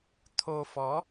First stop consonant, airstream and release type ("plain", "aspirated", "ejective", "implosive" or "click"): aspirated